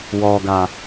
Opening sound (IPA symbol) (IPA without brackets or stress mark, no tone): w